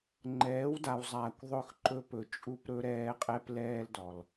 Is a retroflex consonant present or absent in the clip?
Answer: absent